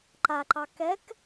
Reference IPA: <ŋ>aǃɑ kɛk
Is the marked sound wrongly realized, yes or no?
yes